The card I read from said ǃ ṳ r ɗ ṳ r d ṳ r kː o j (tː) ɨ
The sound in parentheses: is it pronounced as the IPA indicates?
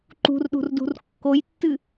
yes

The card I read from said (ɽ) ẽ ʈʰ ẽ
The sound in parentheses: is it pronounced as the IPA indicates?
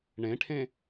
no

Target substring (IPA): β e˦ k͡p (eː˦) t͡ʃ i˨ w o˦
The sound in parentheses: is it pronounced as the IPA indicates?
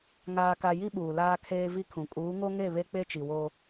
no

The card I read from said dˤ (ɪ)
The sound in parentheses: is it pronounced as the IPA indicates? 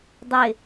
yes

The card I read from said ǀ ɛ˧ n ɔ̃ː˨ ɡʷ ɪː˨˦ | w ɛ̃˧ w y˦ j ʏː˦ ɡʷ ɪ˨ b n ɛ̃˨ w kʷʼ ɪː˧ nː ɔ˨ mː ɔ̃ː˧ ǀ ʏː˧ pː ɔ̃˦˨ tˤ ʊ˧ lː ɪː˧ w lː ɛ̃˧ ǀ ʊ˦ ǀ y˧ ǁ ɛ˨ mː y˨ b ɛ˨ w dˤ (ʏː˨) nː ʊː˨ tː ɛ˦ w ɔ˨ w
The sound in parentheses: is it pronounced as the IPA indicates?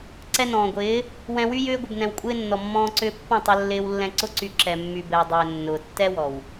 yes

